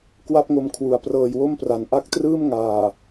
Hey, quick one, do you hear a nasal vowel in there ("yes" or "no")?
no